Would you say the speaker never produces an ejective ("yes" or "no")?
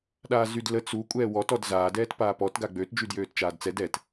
no